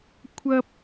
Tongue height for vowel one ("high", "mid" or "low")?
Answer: low